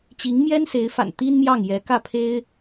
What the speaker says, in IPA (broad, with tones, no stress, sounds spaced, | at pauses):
t͡ɕ i˧˥ ŋ m j ɛ˥ n s e˧˥ ɪ̯ f a̰˨˩ n t̪ i˥ n m j ɑ˥˩ ŋ j ɛ˧˥ k ä˥˩ pʰ e˥ ɪ̯